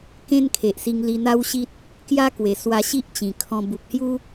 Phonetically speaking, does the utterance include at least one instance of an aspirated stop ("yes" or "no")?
yes